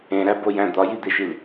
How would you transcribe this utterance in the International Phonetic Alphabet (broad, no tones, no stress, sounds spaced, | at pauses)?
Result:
ẽ ɾ æ b o j æ̃ d̪ ɒ j i d̪ e ʃ i l